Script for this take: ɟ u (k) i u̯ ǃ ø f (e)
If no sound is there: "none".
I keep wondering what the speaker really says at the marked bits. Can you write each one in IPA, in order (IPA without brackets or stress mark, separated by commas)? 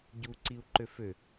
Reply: ǀ, ø